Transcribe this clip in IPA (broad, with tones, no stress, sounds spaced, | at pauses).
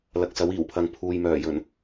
l ɐ˨ k̚ s ɐ˨˥ w iː˨˩ w pʰ ɐ˨ ŋ pʰ uː˨ j m œː˨˩ j ɵ˨˩ n